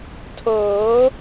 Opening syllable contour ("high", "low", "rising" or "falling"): rising